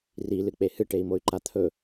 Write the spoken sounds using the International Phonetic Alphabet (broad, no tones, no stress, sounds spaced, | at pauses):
r i l ɨ k͡p e h ɨ ʈ e i̯ m o y̯ ǃ a t̪ʰ ɵ